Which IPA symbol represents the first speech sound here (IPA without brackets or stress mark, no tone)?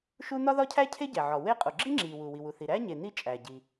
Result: ʃ